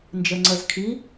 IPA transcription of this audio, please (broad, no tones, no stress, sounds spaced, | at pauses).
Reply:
n d͡ʒ ə ŋ͡ǀ ə z kʰ i